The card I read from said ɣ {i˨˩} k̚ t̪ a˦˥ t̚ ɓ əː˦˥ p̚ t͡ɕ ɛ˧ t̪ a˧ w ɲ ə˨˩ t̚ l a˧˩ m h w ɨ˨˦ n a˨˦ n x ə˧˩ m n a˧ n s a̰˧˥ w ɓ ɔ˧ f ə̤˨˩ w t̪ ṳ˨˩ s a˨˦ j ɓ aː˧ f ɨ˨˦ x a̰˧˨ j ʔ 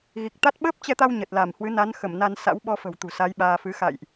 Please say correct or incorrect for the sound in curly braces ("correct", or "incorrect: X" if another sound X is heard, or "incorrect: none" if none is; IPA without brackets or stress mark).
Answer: correct